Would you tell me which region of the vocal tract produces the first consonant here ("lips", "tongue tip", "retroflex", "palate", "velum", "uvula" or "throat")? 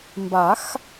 lips